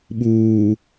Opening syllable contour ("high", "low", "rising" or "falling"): low